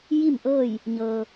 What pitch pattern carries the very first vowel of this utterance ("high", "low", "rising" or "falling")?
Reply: falling